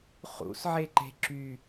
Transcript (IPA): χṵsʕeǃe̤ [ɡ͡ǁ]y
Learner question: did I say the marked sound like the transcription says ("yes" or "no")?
no